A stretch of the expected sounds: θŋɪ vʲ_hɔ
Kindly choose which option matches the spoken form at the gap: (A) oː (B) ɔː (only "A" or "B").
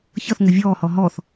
B